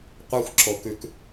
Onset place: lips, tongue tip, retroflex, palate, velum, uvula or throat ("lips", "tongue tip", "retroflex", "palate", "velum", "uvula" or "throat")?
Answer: uvula